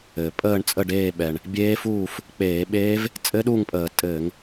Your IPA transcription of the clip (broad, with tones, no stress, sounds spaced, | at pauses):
ɘː˩ pʼ əː˥˨ ɳ t͡sʼ ə˥˨ ɖ eː˥˨ ɓ ɛ˩ ɳ | bʲ eː˦˥ f uː˥˨ f | k͡p eː˧˩˧ ɓ eː˦˥ v | t͡sʼ ɘ˦˥ ɗ u˥˨ ŋ pʼ əː˧˩˧ tʼ ɘː˧˩˧ ŋ